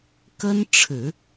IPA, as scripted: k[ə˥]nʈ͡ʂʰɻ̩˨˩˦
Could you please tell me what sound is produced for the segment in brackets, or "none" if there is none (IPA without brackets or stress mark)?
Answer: ə˥